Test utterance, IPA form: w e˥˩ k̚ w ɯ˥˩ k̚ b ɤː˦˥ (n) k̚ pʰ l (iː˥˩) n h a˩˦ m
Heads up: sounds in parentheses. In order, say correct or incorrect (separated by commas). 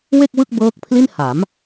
incorrect, incorrect